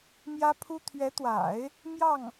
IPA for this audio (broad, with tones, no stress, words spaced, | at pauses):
mjä˥pʰu˥ t̪ʰɥɛ˧˥t̪wa̰˨˩˦ɪ̯ | mjɑ˥˩ŋ